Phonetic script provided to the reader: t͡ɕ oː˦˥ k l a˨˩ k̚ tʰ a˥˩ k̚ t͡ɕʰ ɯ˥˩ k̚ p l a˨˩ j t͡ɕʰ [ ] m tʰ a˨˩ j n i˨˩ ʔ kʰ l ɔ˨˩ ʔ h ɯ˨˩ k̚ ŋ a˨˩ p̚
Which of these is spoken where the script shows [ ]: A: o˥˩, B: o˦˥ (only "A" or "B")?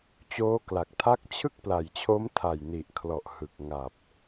B